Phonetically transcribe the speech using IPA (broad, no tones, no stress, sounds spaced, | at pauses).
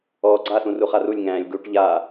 ɔː ɡ͡ǀ a s ũ r u χ a r u lʲ ŋ æ̃ː lʲ ɡ u ʈ ʎ a